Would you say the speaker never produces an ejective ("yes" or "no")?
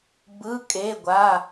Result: no